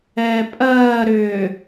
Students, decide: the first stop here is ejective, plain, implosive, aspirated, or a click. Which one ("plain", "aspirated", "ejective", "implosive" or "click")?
ejective